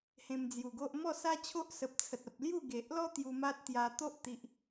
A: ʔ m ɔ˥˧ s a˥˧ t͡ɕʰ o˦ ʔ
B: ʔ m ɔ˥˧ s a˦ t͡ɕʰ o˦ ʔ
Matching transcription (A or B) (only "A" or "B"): B